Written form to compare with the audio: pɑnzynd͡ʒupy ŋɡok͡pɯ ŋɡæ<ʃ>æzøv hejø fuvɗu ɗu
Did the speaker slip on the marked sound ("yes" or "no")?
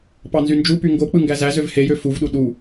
yes